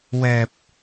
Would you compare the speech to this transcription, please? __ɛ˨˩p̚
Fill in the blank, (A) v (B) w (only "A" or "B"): B